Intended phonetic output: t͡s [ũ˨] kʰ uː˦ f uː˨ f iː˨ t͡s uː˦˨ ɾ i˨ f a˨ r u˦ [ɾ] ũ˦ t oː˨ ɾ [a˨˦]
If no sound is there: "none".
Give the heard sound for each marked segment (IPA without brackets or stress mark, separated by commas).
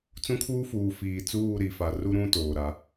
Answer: ũ˦, ɾ, a˨˦